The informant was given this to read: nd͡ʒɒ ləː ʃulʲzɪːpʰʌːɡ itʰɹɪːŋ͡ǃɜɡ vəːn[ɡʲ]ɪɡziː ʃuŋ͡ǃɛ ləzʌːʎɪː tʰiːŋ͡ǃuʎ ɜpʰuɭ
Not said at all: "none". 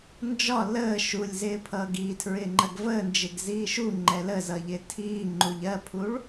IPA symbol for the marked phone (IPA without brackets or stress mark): d͡ʒ